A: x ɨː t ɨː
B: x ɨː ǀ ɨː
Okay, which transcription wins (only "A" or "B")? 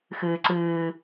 B